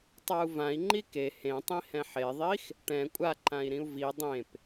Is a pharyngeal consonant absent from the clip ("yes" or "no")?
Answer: no